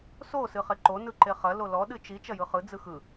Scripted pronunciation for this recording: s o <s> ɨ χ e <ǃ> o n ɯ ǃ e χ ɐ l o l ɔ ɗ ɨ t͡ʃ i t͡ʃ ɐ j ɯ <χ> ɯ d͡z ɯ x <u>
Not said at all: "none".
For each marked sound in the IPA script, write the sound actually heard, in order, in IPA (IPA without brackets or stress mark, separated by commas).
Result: s, ǃ, χ, ɯ